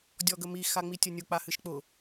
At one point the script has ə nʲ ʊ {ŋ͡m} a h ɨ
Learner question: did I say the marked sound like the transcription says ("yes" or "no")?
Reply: no